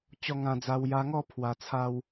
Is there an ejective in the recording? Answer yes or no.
no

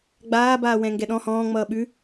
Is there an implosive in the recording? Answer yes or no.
yes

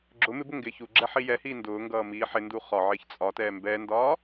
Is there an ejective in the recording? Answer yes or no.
yes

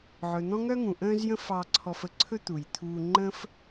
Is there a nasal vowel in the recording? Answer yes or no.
yes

